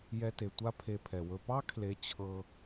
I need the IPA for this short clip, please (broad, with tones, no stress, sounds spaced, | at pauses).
j ɛ˧ t e˨ tʷ a˦ pʰ e˧ pʰ ɛ˨ w ɵ˧ p ɑ˦ kʰ l e˨˦ t͡ɕʰ ɤ˧